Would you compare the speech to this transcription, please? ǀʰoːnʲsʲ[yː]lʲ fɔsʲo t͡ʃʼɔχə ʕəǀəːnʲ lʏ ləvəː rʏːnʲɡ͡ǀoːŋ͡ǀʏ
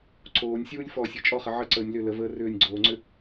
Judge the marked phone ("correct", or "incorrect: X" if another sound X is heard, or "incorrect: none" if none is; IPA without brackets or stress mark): incorrect: uː